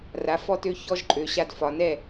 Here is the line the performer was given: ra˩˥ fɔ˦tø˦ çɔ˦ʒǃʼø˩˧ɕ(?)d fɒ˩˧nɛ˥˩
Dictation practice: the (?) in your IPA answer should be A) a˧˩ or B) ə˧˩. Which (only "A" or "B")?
A